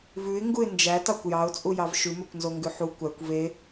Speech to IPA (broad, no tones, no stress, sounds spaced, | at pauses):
v ʉ ɪ̯ ŋ ɡ u ɪ̯ n d͡ʒ æ t ɑ kʷ j ɑ ʊ̯ t͡sʼ u j ɑ v ʃ ʉ m ø kʷ n z o ŋ ɡ ʉ ħ u kʷ æ kʷ v e